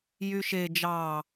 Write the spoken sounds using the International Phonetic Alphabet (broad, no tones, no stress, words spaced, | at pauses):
jyʃe d͡ʒɑː